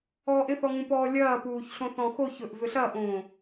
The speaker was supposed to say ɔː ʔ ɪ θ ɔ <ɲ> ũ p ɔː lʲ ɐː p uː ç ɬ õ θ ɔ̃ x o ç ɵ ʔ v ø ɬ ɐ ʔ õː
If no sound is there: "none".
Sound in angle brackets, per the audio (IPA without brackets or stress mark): ŋ